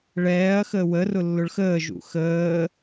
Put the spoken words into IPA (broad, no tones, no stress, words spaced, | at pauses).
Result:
ɭɛːɐ̯ xəːwə rʊlːʊɭxəː ʒṵxəː